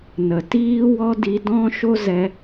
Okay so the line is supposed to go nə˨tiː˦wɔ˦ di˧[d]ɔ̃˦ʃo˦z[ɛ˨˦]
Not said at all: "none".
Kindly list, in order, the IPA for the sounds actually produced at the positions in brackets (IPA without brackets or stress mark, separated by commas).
d, ɛ˧